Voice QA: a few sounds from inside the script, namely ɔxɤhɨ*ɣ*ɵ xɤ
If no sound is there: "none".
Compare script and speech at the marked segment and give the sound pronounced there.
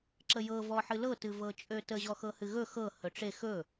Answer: ɣ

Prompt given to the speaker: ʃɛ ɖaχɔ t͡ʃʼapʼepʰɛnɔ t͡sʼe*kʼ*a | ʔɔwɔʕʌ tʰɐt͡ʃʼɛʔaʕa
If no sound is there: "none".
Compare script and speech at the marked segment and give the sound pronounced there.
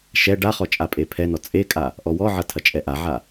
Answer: kʼ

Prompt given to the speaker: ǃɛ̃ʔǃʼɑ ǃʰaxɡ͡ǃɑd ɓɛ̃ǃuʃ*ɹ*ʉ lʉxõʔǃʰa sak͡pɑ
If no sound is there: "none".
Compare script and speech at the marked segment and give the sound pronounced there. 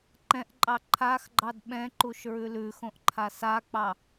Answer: ɹ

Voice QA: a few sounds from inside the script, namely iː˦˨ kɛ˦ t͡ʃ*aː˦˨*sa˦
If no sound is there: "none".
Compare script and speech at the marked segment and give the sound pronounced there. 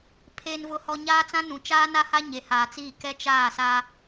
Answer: aː˦˨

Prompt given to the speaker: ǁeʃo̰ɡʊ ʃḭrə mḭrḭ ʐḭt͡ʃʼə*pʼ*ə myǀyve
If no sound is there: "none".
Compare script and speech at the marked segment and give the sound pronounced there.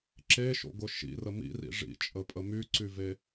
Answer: pʼ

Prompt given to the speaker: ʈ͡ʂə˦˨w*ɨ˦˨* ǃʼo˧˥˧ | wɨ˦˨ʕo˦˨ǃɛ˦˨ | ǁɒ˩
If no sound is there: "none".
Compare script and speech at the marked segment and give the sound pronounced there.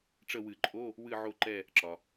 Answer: ɨ˨˩˦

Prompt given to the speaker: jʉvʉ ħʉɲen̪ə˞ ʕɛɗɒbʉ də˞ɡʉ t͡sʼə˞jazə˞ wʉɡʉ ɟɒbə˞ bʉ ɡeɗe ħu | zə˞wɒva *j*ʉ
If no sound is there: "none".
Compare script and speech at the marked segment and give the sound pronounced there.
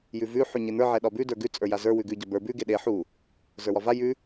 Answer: j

